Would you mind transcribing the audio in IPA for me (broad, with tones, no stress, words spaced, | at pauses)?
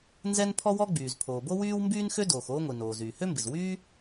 nzɛ˥n pʰɔ˥wɔ˥ɡ͡byː˩z pʰoː˩bo˥wyː˥w mbyː˥nxø˥ doː˩xoː˥ŋʷi˩ noː˩ zyː˩hø˥mbɪ˩z wyː˥